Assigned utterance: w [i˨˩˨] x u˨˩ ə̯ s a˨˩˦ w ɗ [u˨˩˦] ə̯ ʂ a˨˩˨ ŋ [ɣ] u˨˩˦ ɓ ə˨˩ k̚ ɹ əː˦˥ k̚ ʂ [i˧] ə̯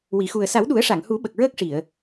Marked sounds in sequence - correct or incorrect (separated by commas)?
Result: correct, correct, incorrect, incorrect